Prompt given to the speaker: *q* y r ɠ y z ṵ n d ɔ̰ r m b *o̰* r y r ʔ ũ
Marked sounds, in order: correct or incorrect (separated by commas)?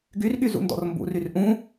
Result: incorrect, incorrect